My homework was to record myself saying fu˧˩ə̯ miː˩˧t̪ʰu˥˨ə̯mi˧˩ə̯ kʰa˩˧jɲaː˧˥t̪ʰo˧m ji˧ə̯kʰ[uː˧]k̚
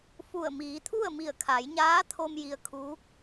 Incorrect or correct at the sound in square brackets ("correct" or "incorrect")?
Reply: incorrect